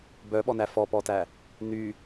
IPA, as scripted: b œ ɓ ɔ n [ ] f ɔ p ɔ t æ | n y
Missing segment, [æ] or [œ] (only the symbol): æ